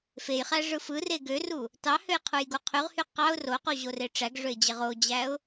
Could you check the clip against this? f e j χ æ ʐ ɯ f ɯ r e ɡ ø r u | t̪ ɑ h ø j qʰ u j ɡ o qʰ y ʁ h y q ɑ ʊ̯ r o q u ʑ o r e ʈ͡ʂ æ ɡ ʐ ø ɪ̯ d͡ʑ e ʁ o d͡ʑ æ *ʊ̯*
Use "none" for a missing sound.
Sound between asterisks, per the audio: ʊ̯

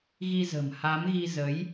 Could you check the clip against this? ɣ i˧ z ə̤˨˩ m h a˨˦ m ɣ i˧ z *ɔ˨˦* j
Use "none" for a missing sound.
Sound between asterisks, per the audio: ə˨˦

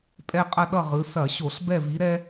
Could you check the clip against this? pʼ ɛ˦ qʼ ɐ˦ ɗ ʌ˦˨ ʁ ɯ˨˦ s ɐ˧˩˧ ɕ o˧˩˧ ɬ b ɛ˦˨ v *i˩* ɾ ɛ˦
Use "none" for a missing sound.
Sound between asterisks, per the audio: i˨˦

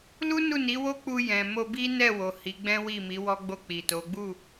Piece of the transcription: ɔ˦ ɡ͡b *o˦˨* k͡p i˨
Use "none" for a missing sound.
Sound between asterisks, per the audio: o˦˨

